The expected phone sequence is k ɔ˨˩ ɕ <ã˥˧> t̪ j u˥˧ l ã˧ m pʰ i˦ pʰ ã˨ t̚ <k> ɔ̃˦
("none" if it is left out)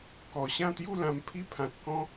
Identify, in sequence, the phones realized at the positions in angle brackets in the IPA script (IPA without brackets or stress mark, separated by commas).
ã˥˧, k